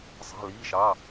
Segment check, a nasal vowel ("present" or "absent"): absent